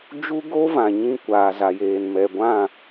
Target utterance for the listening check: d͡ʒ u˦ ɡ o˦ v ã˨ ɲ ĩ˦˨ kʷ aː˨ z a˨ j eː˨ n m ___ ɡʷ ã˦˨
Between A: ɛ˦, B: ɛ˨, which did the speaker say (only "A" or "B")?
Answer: B